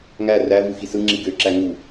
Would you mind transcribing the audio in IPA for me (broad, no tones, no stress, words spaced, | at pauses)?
ŋæ rævɯ xisɯŋ͡ǁi ɡø ǁæŋu